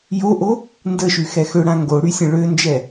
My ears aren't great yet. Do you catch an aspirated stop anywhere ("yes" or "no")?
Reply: no